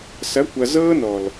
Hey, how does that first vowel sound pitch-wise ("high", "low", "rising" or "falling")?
rising